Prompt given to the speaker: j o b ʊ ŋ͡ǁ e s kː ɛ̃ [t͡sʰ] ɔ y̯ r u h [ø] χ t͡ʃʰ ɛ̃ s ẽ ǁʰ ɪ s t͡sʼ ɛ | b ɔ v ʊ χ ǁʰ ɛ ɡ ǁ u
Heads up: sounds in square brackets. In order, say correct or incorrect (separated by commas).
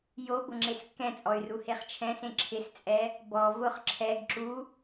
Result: incorrect, incorrect